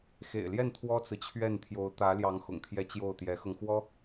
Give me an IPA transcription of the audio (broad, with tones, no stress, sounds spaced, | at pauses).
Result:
x ḛ˨˩ ɪ̯ l j ɛ˥˩ n t̪ʰ w ɔ˥ t͡s ɹ̩˨ t͡ɕʰ ɥ ɛ˥˩ n t̪ʰ j o˧˥ ʊ̯ t̪ ä˧˥ l j ɑ˧˥ ŋ x ʊ̰˨˩ ŋ t̪ʰ j ɛ˧˥ t͡ɕ j o˥˩ ʊ̯ t̪ j ɛ˧˥ x ɤ˧ ŋ x w ɔ˥